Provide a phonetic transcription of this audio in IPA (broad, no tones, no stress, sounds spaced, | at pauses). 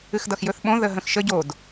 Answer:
ɨ x d ʌ x j ɵ θ ɓ õ ð ə ɦ ə̃ x ʃ ə ɟ o d